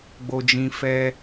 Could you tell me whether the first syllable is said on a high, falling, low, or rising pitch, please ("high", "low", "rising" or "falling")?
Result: low